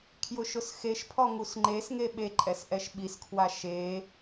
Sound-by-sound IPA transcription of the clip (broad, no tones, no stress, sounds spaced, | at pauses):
kʰ j ʊ ʃ ʊ s x e ʃ pʰ ɔ ŋ u s ŋ͡ǃ e s ŋ e ɓ e ǃʼ ɛ s ʔ ɛ ʃ ɓ i s kʰ w a ʃ e